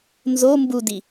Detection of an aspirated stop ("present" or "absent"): absent